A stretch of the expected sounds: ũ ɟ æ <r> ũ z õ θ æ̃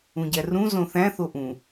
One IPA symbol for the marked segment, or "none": r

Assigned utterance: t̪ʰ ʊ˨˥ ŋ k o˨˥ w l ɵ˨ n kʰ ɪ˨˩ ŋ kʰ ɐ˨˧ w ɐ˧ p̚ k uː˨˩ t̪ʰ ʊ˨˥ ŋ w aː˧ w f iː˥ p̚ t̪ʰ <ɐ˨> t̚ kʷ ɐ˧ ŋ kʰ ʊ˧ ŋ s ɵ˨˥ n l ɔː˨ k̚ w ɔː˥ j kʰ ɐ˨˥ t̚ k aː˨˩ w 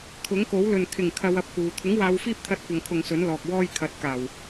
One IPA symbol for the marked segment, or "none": ɐ˥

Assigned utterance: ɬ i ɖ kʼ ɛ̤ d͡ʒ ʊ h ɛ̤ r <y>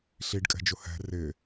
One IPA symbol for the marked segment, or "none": ɪ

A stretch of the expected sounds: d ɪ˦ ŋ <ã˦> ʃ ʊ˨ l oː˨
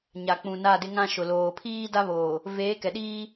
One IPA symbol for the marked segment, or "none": ã˦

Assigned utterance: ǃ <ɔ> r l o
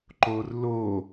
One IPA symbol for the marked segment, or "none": o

